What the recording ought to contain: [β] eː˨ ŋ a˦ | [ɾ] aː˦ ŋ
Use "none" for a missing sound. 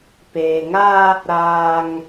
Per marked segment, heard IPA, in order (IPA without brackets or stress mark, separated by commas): p, ɾ